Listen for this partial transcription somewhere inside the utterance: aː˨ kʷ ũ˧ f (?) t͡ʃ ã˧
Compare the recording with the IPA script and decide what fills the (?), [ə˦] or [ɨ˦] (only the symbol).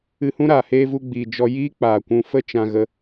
ə˦